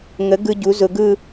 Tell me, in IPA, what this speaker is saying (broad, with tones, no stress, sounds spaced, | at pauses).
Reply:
ŋ ə˨˥ ɡ ɯ˧ ɟ u˨˥ z ʊ˧ ɡ ɯ˥˧